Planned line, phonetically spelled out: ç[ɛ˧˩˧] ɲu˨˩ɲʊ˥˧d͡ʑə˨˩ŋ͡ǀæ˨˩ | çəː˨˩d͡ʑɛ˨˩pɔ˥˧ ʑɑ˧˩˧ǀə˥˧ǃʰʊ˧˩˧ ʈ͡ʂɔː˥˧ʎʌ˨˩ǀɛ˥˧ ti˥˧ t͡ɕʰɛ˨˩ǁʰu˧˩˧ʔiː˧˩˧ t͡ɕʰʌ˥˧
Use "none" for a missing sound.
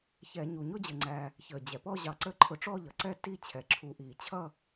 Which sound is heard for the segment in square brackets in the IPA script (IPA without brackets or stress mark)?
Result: ɛ˧˩˧